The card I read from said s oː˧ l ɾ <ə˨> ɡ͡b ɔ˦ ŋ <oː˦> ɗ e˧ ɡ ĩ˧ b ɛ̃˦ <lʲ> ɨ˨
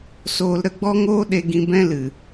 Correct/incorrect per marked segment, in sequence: incorrect: ə˧, correct, incorrect: l

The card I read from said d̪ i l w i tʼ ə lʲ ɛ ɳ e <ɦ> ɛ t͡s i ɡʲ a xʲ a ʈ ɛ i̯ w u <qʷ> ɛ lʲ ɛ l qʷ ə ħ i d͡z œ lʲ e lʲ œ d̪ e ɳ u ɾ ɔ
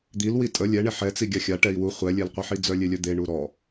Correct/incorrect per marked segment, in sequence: incorrect: ħ, incorrect: χʷ

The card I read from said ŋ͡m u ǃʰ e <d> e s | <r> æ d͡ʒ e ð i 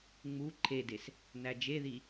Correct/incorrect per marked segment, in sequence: correct, incorrect: n

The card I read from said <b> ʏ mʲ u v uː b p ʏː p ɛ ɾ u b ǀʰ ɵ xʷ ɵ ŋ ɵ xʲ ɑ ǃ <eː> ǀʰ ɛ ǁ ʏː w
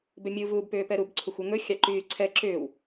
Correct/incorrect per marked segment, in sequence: correct, incorrect: yː

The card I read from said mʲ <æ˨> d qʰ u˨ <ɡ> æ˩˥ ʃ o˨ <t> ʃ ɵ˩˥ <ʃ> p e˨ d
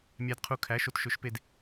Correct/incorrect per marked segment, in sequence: correct, incorrect: kʰ, correct, correct

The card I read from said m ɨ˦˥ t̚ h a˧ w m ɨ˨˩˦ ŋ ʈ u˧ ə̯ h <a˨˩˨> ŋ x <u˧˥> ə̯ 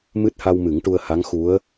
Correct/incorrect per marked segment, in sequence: incorrect: a˧˥, correct

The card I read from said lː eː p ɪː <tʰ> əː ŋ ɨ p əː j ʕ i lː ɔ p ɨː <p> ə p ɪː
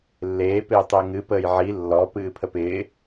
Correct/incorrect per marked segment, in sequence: incorrect: tˤ, incorrect: pʰ

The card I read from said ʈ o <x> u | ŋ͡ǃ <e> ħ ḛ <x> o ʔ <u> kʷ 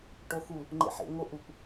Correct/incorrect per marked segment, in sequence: correct, incorrect: ḛ, incorrect: ŋ, correct

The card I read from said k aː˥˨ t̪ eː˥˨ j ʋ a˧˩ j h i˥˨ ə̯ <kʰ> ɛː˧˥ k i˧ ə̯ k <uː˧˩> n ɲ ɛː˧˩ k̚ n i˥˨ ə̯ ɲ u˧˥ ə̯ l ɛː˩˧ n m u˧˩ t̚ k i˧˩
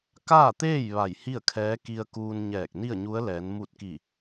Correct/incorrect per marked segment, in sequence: correct, incorrect: uː˧

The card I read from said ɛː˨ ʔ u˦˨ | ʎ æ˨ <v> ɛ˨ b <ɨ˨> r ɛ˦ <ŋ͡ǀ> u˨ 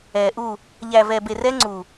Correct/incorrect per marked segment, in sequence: correct, incorrect: e˨, correct

